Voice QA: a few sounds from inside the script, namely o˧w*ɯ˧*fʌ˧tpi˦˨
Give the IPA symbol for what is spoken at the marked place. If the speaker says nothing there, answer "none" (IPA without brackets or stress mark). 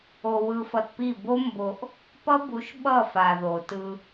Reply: ɯ˧